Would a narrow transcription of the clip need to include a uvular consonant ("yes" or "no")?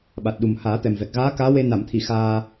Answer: no